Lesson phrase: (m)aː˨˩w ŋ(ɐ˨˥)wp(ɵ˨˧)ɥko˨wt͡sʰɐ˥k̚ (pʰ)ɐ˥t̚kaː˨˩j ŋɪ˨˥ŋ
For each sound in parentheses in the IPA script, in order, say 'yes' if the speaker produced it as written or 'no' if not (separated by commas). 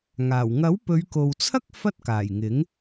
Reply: no, yes, yes, no